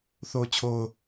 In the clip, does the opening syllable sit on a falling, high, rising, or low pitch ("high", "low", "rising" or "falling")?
low